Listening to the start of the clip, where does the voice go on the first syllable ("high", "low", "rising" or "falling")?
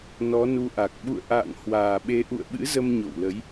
rising